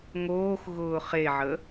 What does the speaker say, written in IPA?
ŋoːxɣʊː χeʕə

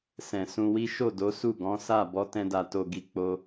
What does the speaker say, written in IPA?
sɛ̃˨sũ˧wi˦ ʃo˦˨do˨˦su˦˨ ɡɔ̃˨˦sa˦˨ bɔ˨˦tɛ̃˧da˨to˨ ɡi˧k͡po˦

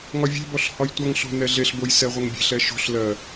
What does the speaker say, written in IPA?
ŋɒvʲe̤bɔɬ hɒjtʷʌŋɬo̤ nɛɮeɬboj sɛʁʷʌŋbʲe̤ɬɛ ʃo̤ɬ lɜ

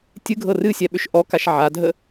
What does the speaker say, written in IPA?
tʲɨɡʱɤ rɨsʲɛɓʏʃ ʔɔkaʃ ʕadʱə

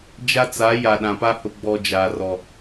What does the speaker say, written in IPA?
d͡ʒa˦t͡sa˨˦ ja˨ɗã˨pa˦ hʊ˨ ɡ͡bɔ˨ d͡ʒaː˨rɔ˨

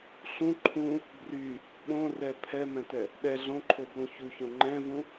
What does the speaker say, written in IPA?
ɬũ ǃʰũ | bry | ɓõrɛ pʰɛmɛ̃tɛ | ɗɛ ɮõǃʰoblũ çuçõ ŋ͡ǃɛ̃vũ

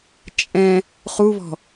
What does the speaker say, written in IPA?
t͡ʃʼɛ̃ | χuβɔ̤

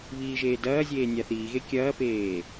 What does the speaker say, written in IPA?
βiːʒeːdɐːzʲeː nʲaθiːɣe kʲɐːpeː

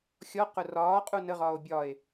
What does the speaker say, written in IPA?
xʲɔ qʊrɒːqʼu nəʁɒːo̯ bʲɒe̯

